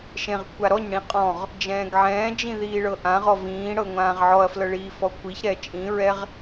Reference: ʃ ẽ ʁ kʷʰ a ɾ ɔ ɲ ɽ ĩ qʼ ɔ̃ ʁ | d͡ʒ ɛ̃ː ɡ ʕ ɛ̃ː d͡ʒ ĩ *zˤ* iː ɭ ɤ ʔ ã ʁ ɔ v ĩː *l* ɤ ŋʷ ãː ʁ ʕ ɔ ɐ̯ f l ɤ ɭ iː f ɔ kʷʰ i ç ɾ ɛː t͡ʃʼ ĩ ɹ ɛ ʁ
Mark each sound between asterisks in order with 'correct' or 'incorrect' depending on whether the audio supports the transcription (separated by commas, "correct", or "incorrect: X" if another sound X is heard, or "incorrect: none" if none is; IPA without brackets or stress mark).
incorrect: ð, incorrect: ɽ